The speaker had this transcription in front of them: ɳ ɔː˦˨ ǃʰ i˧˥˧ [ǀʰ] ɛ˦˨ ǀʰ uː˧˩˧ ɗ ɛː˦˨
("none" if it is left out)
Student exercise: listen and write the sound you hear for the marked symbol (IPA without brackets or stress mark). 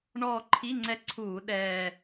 ŋ͡ǀ